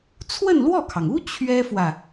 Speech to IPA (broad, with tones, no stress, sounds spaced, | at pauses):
t͡sʰ w ə˥˧ n l w ɔ˥˩ kʰ ɑ˩ ŋ u˥ t͡ɕʰ ɥ ɛ˥ f w ä˨